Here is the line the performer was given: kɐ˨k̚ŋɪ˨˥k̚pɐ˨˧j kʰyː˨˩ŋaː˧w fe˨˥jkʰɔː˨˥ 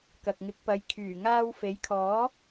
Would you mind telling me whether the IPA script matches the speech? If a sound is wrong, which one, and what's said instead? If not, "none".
none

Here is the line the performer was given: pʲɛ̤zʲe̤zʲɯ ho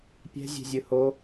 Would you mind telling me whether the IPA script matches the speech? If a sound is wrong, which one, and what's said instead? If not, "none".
none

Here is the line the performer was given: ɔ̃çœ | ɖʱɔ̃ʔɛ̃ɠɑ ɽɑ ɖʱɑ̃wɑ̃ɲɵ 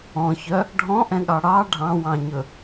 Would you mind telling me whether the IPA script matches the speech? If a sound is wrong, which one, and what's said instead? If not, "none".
none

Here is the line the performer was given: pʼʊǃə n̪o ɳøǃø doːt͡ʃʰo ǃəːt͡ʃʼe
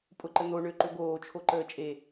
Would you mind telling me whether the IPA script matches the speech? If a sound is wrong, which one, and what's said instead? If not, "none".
d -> ɡ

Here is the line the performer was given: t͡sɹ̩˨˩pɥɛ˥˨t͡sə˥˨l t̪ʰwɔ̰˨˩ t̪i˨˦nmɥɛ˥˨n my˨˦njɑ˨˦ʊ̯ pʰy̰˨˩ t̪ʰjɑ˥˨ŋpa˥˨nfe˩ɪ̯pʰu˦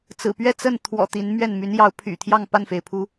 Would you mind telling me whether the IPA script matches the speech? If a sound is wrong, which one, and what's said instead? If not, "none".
l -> n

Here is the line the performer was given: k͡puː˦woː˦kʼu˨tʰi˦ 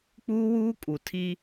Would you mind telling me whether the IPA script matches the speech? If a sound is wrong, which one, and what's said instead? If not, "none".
oː˦ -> uː˦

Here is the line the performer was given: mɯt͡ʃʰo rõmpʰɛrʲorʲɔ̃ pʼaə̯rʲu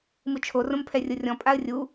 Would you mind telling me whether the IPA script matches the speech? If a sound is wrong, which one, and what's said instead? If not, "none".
none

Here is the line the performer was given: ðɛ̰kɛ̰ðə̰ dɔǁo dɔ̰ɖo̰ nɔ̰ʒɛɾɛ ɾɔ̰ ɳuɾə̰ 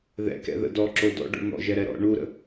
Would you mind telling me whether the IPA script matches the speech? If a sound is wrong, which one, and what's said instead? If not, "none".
none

